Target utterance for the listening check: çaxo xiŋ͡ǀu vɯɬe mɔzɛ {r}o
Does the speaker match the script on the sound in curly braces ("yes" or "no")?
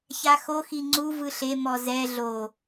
no